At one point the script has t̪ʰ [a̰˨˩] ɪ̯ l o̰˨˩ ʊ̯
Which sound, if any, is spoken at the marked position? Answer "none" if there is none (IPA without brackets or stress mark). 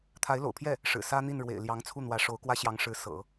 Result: a˧˥